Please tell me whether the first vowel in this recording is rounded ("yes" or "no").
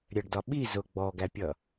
no